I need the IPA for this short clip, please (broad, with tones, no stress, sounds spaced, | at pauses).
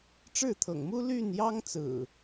ʈ͡ʂ ɻ̩˥˨ t̪ʰ ɤ̰˨˩ ŋ m u˦ l y˥˨ n j ɑ˦ ŋ t͡s ɹ̩˨˩